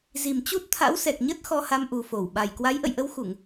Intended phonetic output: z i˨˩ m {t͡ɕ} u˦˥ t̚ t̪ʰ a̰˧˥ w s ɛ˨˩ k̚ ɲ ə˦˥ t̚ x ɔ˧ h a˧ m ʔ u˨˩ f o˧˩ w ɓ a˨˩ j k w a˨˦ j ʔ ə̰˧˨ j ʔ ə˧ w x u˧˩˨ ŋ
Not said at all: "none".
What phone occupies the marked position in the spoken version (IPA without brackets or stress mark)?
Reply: t͡ɕ